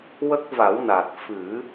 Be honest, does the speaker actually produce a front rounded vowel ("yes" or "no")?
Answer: no